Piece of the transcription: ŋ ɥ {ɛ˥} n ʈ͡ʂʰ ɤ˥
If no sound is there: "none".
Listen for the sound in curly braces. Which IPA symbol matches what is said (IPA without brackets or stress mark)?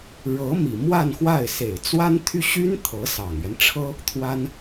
ɛ˦